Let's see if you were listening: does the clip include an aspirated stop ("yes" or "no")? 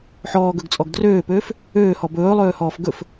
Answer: no